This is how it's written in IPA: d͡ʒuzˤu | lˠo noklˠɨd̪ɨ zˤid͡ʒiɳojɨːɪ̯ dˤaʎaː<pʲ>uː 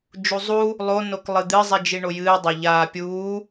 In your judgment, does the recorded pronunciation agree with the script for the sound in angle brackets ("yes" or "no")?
yes